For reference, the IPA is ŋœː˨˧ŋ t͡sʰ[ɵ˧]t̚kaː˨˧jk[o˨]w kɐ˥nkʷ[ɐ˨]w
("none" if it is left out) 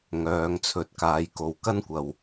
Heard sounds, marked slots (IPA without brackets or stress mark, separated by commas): ɵ˨˥, o˨, ɐ˨